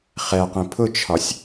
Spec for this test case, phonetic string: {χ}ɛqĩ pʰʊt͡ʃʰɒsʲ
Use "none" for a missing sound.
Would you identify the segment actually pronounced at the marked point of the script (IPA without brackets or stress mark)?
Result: χ